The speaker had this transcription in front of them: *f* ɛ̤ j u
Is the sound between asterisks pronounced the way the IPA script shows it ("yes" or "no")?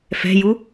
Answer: yes